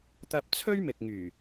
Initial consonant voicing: voiceless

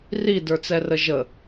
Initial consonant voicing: voiced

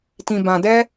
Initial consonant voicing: voiceless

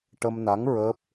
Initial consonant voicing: voiceless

